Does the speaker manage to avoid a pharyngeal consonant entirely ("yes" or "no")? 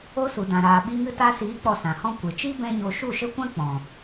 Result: yes